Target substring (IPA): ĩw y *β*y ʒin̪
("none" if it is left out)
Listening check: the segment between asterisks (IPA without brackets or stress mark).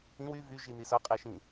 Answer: v